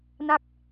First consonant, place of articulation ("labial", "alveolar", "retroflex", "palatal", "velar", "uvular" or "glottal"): alveolar